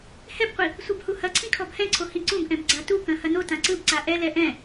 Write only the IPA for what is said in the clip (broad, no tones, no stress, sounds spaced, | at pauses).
h ɛ b qʷ i | sʷ ɯ b h u h ɐ ǀʰ ĩ kʰ ɔ b h ɛ̃ ǀʰ o h ĩ ǀ ũ b ʔ ɛ̃ b ɡ͡ǀ a t u k ɐ̃ h ɐ n o t ã ǀ ɯ b ǀ a ʔ ɛ l ɛ ʔ ɛ̃